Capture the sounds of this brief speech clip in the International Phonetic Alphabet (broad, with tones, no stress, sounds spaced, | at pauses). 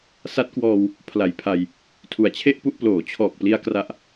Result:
s a˦˥ t̚ k w ɔː˧ w | pʰ l a˨˩ j pʰ a˧ j | tʰ u˨˩ a̯ t͡ɕʰ e˥˩ ʔ p u˥˩ ʔ p l oː˩˦ t͡ɕʰ ɔː˨˩ k̚ p l i˧ a̯ k r a˦˥ ʔ